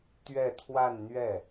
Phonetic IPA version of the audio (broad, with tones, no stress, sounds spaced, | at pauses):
t̪ ɥ ɛ˥˧ t̪ʰ w a˥˧ n n̪ ɥ ɛ˥˩